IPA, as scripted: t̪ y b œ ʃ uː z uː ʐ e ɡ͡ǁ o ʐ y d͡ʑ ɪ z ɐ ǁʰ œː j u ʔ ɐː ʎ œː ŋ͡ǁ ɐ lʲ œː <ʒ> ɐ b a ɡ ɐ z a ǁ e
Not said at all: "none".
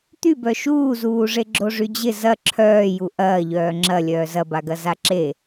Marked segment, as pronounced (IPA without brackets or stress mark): z